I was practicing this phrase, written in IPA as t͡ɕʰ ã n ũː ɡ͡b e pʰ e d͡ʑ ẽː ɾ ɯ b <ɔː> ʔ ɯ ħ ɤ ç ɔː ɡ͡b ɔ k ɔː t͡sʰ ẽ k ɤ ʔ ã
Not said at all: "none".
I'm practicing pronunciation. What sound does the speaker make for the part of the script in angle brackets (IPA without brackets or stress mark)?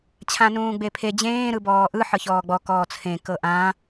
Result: ɔː